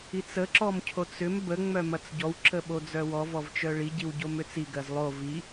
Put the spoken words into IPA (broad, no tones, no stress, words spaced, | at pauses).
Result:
it͡sə ǁɔmcʰot͡sʏm bə ŋ͡mœmɐt͡sɟɔw ǁəɓod͡zœwɔ vɔvt͡ʃœɭi ɟiwɟomʏt͡si ɡɜzlˠo vi